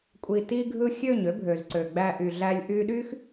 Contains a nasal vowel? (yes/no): no